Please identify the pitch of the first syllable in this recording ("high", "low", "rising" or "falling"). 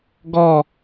falling